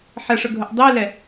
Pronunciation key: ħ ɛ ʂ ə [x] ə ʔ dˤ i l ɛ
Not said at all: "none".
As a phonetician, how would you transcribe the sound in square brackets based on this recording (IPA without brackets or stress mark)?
ɡʱ